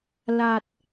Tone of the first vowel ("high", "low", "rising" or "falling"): low